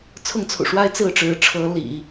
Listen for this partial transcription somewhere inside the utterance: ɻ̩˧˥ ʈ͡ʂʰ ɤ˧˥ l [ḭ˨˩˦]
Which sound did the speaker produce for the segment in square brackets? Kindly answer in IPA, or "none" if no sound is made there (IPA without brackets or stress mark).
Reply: ḭ˨˩˦